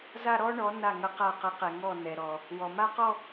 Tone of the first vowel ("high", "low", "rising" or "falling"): falling